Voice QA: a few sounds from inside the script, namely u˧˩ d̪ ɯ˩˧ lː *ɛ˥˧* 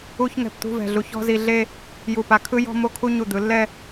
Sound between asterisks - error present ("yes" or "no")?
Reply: no